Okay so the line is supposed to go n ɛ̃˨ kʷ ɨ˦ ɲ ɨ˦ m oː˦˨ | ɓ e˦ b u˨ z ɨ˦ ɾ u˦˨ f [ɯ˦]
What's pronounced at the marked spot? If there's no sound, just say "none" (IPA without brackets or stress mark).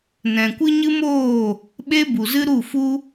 u˦